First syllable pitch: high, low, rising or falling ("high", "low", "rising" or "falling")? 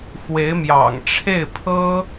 rising